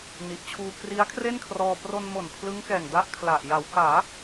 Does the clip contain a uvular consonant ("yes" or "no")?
no